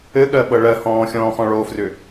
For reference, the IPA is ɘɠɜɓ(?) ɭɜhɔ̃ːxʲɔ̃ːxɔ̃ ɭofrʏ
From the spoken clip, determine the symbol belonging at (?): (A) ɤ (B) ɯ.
A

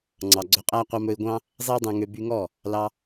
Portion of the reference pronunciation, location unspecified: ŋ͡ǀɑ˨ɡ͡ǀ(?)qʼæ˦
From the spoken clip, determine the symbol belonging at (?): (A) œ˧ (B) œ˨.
A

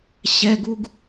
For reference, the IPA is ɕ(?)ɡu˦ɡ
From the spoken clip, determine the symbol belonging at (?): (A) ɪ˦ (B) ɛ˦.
B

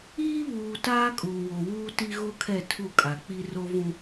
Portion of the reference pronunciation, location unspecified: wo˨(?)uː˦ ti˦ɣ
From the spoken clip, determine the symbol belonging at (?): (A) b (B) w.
B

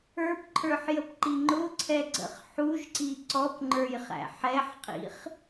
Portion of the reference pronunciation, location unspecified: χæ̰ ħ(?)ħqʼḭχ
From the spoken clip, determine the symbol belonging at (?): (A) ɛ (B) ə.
A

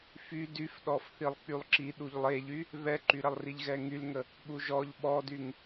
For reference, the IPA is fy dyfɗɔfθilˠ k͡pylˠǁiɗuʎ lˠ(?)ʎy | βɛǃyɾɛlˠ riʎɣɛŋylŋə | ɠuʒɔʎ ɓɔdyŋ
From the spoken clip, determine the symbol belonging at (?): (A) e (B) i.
A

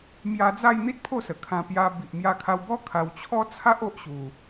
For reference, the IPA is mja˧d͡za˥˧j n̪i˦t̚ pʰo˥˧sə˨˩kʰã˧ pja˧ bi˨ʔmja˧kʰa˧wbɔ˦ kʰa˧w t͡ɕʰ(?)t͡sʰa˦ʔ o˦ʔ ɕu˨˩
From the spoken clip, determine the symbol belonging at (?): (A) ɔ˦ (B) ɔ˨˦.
A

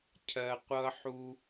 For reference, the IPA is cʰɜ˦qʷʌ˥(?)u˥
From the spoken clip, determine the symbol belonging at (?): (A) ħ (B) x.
A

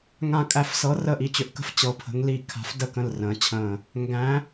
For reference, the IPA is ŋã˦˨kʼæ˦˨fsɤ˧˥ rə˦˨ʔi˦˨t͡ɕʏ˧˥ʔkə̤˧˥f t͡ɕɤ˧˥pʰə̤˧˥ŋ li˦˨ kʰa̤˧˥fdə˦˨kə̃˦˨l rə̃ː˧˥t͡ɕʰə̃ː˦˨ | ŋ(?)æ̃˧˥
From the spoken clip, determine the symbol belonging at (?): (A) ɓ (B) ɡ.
B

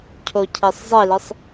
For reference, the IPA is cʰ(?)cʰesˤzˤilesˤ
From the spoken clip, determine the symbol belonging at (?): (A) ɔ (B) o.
B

